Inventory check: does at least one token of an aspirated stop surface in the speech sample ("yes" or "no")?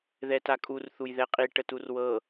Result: no